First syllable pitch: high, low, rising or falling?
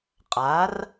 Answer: rising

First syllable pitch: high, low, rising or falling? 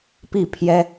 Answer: falling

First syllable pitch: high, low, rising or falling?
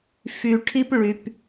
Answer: low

